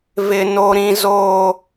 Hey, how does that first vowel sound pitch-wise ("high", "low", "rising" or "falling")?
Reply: high